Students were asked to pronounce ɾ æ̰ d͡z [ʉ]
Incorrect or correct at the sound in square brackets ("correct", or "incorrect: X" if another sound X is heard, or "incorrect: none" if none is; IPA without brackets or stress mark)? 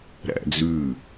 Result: correct